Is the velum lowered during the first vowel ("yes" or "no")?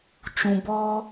yes